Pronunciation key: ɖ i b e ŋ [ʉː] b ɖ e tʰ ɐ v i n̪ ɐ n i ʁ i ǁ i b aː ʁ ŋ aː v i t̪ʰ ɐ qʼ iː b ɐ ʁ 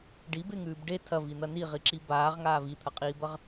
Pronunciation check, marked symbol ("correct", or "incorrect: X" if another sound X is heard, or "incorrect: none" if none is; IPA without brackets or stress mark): correct